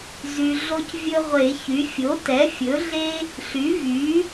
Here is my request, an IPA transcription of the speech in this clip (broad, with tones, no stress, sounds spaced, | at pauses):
z y˨ ɮ o˦ c vʲ ɵ˦ ʁʷ e˨˩˦ ç y˩˥ fʲ o˩˥ t ɛ˩˥ fʲ ɵ˩˥ ɮ e˦ | ɬ y˩˥ v y˩˥